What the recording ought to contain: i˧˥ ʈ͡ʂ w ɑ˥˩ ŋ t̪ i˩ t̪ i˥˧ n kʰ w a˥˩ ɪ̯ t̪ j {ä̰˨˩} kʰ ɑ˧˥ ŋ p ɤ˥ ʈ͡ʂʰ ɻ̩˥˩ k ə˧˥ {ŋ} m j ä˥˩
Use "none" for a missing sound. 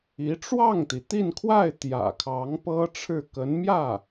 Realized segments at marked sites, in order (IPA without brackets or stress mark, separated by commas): ä̰˨˩, n